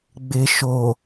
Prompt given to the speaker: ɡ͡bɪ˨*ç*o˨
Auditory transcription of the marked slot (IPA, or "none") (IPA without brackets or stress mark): ʃ